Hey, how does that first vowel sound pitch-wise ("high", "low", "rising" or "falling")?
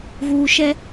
low